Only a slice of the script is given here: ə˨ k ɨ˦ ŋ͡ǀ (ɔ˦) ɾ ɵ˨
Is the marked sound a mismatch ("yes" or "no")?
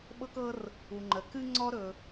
no